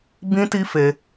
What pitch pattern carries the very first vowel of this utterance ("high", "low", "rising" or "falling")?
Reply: high